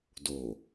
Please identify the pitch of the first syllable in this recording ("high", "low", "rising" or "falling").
low